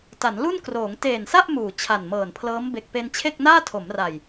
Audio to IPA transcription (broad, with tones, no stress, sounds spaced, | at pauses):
t a˩˦ n l u˥˩ n k r oː˩˦ ŋ t eː˨˩ n s a˥˩ ʔ m uː˨˩ t͡ɕʰ a˨˩ n m ɤː˨˩ n pʰ l ɤː˦˥ m b e˨˩ k̚ p e˧ n t͡ɕʰ e˥˩ k̚ n aː˥˩ tʰ o˩˦ m r a˨˩ j